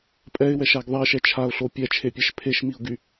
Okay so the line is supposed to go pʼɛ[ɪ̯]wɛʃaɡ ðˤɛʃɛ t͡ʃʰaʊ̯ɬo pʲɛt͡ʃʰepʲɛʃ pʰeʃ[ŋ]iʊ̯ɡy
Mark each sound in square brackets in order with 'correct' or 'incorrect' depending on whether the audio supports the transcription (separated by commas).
correct, incorrect